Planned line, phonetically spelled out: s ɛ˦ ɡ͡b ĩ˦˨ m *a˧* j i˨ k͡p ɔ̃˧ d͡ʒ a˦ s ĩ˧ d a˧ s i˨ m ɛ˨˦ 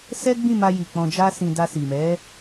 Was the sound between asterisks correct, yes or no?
yes